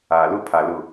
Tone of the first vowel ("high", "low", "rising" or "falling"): low